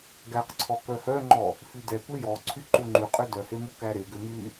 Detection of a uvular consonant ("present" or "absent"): present